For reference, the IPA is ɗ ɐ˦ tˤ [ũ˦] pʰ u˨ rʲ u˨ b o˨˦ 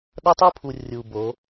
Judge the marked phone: incorrect: u˦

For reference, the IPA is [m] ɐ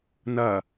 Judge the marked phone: incorrect: n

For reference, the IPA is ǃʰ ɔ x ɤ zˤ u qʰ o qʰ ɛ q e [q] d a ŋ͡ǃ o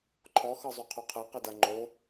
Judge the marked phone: incorrect: none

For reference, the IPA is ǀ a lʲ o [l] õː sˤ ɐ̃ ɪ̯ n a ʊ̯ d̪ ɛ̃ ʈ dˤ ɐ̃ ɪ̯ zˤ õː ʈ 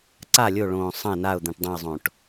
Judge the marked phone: incorrect: ɭ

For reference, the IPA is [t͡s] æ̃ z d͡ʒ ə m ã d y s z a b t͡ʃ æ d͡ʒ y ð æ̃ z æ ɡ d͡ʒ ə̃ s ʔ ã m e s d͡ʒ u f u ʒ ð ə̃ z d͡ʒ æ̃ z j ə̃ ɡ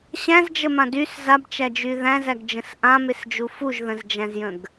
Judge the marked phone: incorrect: ɕ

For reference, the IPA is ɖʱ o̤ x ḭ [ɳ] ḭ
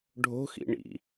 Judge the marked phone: correct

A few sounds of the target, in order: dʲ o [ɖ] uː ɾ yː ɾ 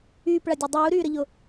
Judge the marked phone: incorrect: dˤ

